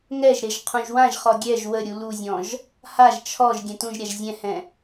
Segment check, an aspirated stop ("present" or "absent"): present